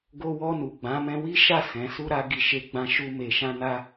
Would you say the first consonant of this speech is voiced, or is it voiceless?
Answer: voiced